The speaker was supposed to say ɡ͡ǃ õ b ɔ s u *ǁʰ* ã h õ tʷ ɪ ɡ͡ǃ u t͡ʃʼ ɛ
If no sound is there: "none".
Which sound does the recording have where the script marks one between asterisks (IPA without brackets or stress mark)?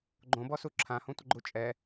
ǁʰ